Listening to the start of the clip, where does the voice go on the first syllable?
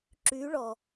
rising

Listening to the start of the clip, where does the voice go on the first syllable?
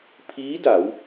rising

